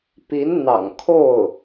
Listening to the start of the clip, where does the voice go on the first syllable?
rising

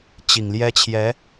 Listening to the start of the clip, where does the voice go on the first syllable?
low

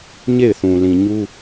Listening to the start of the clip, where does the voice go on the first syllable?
falling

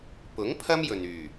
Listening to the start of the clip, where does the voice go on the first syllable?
rising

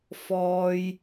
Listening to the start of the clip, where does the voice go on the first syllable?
high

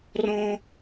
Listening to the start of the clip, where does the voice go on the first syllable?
high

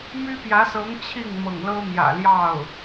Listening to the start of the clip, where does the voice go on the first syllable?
high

